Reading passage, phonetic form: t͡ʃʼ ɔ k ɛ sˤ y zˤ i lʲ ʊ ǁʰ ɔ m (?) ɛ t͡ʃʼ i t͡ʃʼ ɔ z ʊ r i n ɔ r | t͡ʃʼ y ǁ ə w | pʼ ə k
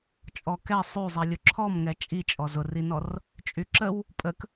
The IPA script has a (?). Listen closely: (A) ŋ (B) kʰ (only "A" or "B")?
A